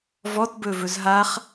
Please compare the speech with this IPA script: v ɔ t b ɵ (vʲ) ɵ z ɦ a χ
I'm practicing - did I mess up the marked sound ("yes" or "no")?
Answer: yes